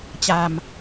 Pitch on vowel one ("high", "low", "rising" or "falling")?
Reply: low